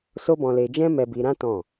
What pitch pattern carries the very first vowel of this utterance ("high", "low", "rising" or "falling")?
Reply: high